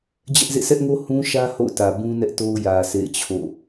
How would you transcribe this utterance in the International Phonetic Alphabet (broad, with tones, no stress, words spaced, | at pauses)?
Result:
d͡ʑɛ˦ʔzḛ˦˨ sɛ˦ʔŋo˦ hũ˦ʃä˦ ho̰˦˨ʊ̯tä˨ bũ˦ nɛ˦ʔto˦ʊ̯ jä˨ sʰḛ˦˨ɪ̯t͡ɕʰo̰˦˨